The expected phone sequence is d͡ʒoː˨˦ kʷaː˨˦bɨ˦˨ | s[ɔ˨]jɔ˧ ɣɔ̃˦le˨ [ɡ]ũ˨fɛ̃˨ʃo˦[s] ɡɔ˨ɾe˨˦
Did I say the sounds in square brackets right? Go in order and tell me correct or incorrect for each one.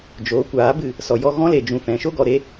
correct, incorrect, incorrect

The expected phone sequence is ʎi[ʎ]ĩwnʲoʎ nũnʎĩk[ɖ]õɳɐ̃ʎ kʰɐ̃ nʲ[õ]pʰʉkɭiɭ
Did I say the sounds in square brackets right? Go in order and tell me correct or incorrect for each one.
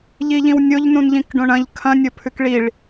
correct, correct, incorrect

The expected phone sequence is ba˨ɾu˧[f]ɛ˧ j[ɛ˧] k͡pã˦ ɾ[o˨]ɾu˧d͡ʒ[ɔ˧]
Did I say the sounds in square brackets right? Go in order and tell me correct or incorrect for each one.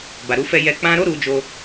correct, correct, incorrect, incorrect

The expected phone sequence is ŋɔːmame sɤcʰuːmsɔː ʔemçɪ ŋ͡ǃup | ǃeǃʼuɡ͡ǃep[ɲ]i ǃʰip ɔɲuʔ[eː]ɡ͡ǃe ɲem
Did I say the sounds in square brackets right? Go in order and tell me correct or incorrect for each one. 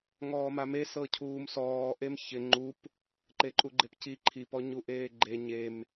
incorrect, correct

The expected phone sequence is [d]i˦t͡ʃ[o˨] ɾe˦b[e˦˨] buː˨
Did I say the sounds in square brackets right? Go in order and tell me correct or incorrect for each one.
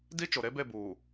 correct, correct, correct

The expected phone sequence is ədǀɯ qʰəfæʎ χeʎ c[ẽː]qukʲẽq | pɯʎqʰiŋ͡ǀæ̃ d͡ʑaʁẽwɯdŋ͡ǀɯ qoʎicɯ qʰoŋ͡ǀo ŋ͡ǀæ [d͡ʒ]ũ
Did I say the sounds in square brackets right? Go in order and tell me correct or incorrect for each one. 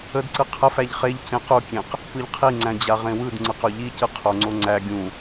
incorrect, incorrect

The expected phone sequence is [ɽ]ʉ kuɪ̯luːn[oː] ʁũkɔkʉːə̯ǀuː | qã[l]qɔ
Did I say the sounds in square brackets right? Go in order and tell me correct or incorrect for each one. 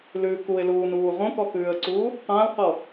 incorrect, incorrect, correct

